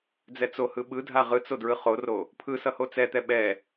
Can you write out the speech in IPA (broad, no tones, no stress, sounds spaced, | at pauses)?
d͡z ɛ t͡s o h ɯ ɓ ɯ dʱ a ʁ ɯ t͡s o d ɹ ɯ χ o r o | pʰ ɯ s ʌ h o t͡s ɛ t̪ ɛ ɓ ɛ